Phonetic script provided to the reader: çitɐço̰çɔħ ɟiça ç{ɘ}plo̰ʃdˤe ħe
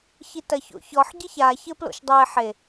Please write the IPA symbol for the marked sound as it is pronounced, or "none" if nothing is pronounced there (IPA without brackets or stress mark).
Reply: ɘ